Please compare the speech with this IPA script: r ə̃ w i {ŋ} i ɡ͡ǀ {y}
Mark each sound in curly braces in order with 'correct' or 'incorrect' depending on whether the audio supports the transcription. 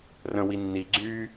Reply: incorrect: nː, correct

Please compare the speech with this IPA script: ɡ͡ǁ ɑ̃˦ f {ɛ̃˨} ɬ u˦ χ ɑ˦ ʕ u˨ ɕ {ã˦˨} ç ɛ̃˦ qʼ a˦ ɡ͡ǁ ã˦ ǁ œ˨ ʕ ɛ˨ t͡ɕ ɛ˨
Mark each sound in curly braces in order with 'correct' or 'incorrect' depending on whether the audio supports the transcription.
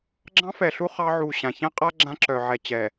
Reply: incorrect: ɛ˨, incorrect: ã˨

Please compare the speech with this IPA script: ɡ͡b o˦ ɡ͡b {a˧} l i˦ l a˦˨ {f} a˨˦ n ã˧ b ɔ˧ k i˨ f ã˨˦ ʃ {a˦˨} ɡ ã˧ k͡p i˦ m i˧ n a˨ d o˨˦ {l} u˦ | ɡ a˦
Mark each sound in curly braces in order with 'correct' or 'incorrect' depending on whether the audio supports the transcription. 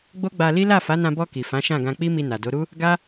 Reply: correct, correct, incorrect: ã˦˨, incorrect: ɾ

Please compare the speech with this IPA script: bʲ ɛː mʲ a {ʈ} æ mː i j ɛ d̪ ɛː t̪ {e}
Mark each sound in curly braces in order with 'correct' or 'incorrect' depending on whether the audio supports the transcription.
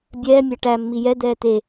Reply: correct, correct

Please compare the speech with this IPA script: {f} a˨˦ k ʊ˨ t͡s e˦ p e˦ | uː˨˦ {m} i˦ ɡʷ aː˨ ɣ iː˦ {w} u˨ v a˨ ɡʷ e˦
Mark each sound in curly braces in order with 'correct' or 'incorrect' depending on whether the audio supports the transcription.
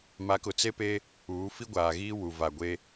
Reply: incorrect: m, incorrect: f, correct

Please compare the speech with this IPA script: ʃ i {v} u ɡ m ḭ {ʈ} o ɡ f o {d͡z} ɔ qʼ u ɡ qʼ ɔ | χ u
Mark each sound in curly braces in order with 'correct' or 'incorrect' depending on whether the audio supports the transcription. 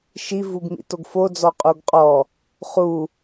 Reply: correct, incorrect: t, correct

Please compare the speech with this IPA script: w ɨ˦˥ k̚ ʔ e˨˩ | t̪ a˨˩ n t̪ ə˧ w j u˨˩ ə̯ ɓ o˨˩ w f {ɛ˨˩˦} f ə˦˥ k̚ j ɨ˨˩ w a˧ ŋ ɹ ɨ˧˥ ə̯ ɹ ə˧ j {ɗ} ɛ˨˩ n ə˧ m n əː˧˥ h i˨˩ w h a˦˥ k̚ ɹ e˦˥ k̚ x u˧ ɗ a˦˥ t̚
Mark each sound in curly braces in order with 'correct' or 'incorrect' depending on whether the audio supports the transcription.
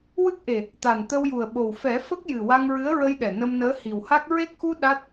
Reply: correct, correct

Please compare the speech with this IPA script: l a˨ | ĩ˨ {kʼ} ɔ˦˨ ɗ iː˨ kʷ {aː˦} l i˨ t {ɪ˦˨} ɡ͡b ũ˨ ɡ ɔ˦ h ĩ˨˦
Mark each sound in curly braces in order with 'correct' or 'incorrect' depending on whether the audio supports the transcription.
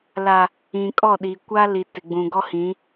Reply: correct, incorrect: a˦, incorrect: ɪ˨

